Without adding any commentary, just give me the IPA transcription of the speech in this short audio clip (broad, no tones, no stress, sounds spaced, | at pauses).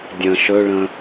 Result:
dʲ ə̃ ʃ ɵ ɭ ə̃